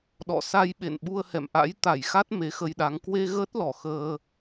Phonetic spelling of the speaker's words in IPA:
ɗɔ̰˧˨sa˧jɓḛ˧˨n ɓu˧ə̯hɛ̰˧˨mʔa̰˧˥j t̪a˧˩jxa˦˥t̚ me˨˦xə˧jɗa˨˦ŋ kwe˧ ɣəː˦˥t̚lɔ˧˩ xəː˧

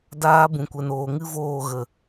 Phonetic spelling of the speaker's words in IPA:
daː˧ bũ˨kʷɛ˨n oː˨ŋɨ˦voː˦˨ ɣə˨

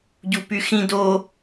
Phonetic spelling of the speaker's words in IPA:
ɟupyxĩ do

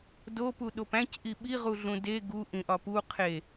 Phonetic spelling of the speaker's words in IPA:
dopu ɗopæ̃cʔi ɓiʁuɮũ de ɡuʔĩ ʔɒpu qʰe

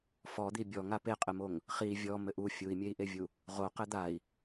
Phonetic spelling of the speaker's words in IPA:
fɔd̪i bʲɔŋa peqʼɘmoŋ | χi vʲɔ mɘʔu fʲui̯mʲei̯ʔevʲu | ʁo qɘd̪ai̯

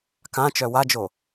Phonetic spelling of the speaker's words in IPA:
kãt͡ʃœ wad͡ʒo

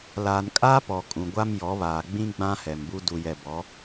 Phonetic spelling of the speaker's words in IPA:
laː˨nkʼaː˦pɔ˨ kʼũ˨ɡʷa˦mjɔ˨˦βaː˨ ɡ͡bĩ˦ ɡ͡bã˦ hɛ˨mbu˦ du˨jɛ˨ bɔ˨˦

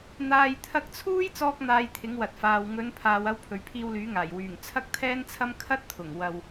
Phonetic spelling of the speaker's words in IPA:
n̪aː˧j t̪ʰɐ˧k̚t͡sʰuː˥j t͡sɔː˥k̚n̪aː˧jt̪ʰɪ˨˥ŋ wɐ˨t̚faː˨w ŋɵ˨˧n pʰaː˨wɐ˧w pʰɵ˨ɥpʰiː˧wlyː˨˥ŋaː˨˩j wyː˨˩ŋ t͡sʰɐ˥k̚t̪ʰɛː˥nt͡sʰɐ˥m kʰɐ˥t̚t̪ʰʊ˨˩ŋ wɐ˨w

